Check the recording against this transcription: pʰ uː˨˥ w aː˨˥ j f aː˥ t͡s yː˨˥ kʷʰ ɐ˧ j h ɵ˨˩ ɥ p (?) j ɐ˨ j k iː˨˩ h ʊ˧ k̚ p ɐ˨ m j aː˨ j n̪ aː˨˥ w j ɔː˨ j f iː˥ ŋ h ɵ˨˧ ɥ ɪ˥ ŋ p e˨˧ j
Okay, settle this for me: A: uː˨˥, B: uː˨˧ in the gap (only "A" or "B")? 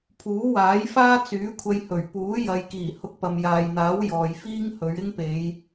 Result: A